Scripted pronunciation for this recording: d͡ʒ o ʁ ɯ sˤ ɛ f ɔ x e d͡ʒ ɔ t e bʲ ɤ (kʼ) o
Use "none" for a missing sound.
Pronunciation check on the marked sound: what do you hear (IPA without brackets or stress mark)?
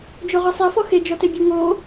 ŋ